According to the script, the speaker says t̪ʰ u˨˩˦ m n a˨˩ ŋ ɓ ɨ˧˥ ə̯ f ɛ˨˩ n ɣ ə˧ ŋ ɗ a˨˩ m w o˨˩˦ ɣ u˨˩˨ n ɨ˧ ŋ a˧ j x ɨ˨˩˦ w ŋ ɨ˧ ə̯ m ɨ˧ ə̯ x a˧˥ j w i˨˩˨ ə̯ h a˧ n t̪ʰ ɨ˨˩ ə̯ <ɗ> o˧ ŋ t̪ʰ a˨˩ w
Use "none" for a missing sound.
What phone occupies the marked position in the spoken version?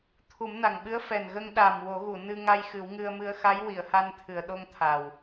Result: ɗ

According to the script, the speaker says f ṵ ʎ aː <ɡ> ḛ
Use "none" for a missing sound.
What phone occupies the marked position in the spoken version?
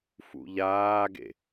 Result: ɡ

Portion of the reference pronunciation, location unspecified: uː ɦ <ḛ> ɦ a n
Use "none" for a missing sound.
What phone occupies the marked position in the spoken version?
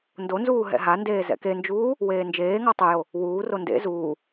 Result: ɛ̰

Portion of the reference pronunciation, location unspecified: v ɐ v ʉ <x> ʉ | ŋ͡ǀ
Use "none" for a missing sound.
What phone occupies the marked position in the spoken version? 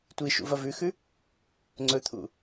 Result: x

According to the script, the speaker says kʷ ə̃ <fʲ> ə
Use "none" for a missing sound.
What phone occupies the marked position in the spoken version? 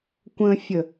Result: fʲ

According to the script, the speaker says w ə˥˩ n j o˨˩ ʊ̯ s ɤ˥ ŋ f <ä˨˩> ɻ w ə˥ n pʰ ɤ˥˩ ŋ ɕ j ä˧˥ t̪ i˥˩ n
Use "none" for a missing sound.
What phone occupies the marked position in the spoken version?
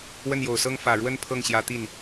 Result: ä˨˩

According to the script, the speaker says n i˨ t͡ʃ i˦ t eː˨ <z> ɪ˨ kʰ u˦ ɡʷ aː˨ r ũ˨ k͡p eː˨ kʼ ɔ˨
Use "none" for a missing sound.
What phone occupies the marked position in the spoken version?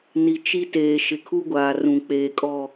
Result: ʃ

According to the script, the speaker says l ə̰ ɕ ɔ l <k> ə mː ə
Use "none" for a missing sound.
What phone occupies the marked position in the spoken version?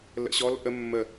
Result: ʔ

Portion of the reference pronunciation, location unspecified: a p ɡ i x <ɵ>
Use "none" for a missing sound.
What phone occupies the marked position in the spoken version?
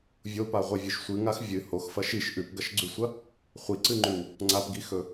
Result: ɵ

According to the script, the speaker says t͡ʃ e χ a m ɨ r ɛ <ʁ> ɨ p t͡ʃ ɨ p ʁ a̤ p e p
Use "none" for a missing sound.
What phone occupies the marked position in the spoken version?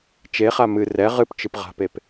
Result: ʁ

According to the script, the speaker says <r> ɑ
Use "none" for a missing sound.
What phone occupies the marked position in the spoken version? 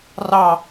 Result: r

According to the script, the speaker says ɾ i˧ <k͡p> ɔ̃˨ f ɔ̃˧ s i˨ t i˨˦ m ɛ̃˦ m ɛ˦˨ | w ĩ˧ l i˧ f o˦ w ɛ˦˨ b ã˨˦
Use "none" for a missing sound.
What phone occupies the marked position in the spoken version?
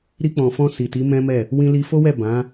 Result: k͡p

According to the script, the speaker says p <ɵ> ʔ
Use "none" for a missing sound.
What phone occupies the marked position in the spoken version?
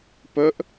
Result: ɵ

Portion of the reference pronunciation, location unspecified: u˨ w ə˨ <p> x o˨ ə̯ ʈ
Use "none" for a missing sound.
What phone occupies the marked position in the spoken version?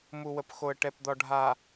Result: p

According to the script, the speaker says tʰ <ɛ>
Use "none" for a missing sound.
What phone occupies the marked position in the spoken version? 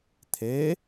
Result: e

